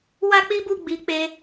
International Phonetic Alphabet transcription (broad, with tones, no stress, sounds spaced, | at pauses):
w a˦ k͡p i˦ b u˦˨ ɡ͡b i˧ k͡p e˦